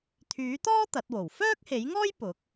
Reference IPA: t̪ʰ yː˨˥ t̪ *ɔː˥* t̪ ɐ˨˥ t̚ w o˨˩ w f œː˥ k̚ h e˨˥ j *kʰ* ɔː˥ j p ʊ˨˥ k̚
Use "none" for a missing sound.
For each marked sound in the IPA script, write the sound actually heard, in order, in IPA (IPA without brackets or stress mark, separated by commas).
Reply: ɔː˥, ŋ